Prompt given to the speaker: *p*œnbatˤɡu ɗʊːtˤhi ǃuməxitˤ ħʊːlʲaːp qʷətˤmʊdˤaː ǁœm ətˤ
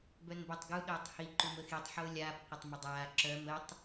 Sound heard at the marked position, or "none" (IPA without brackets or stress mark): b